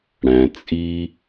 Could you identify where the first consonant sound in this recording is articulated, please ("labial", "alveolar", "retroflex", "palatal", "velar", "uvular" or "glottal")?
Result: retroflex